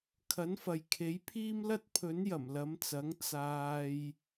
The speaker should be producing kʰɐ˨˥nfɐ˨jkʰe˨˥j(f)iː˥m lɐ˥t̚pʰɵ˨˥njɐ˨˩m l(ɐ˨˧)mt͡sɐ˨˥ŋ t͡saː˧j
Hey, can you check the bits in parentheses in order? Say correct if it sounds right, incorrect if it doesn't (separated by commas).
incorrect, correct